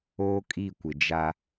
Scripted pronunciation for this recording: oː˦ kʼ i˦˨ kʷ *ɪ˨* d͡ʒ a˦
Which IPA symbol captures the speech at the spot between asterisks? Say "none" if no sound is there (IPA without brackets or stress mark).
ɪ˨